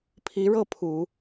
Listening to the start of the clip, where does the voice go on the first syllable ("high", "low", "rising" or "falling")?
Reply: rising